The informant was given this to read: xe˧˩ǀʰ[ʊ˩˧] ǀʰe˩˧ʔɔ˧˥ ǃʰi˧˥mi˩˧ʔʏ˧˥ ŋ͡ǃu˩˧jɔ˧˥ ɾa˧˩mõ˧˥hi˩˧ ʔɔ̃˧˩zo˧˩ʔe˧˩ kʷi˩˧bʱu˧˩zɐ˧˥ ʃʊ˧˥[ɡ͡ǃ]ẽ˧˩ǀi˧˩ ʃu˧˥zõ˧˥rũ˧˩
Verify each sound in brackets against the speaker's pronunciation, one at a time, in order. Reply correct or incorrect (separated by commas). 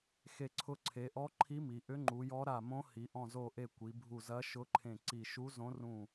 incorrect, incorrect